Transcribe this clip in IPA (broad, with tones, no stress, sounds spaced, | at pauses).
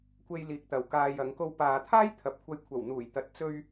kʷ e˧ j l iː˨ k̚ t̪ ɐ˨ w k aː˧ j ɐ˨˧ ŋ k o˧ w p aː˨ t̪ʰ aː˥ j t̪ʰ ɐ˨ p̚ kʷʰ ɐ˧ j kʷʰ ɐ˨˩ w n̪ uː˨˩ j t̪ ɐ˨ t̚ t͡s ɵ˧ ɥ